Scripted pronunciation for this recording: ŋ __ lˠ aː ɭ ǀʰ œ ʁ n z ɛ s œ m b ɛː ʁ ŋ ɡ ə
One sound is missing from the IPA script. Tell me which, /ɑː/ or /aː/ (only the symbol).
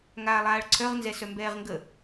aː